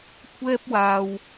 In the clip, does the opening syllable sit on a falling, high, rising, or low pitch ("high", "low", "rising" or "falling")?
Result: high